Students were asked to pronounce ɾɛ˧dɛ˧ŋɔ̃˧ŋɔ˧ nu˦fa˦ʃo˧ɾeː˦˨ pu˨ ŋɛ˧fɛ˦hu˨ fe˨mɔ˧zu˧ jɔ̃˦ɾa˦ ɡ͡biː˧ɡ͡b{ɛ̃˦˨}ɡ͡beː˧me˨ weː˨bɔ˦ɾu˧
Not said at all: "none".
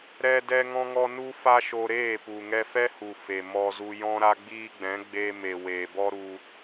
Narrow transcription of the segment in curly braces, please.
ɛ̃˨˦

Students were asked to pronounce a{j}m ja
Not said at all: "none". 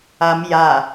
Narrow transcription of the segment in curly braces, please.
none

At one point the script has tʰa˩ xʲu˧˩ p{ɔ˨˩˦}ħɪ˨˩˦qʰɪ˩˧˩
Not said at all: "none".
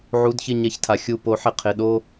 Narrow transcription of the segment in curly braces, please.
o˨˩˦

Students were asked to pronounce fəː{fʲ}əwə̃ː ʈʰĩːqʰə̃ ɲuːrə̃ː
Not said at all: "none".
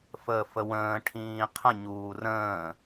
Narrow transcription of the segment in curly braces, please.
f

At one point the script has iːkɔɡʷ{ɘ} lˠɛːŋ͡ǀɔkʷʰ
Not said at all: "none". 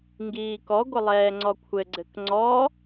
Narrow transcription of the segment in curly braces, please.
ɘ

